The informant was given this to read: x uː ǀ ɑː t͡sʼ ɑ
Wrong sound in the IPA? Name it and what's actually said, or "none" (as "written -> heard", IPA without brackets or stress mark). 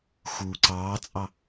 none